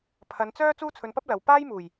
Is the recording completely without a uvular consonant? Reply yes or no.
yes